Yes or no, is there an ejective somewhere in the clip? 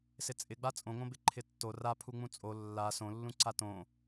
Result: yes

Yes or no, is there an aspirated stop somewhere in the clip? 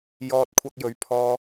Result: yes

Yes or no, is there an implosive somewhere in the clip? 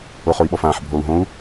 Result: yes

